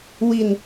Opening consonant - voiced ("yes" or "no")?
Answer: yes